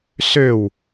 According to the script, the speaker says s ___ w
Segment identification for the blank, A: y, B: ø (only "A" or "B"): B